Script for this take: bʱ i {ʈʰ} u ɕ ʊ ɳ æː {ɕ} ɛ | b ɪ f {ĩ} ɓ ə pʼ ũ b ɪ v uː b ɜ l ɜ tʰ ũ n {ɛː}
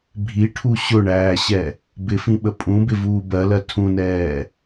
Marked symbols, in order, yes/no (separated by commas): yes, yes, yes, yes